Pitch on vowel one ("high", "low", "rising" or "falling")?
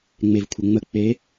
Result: low